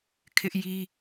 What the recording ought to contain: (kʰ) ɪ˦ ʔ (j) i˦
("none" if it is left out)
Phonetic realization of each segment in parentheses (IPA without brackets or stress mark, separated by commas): kʰ, j